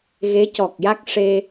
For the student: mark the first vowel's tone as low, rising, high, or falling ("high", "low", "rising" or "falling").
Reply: rising